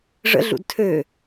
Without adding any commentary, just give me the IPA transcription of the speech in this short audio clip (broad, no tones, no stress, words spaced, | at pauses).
ʐə̰ɮṵd tʰø